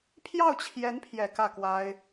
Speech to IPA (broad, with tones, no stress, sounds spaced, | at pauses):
pʰ j ɑ˥˩ ʊ̯ t͡ɕʰ j ɛ˧˥ n pʰ j ɛ˨˩ k ä˥˩ k w a˥ ɪ̯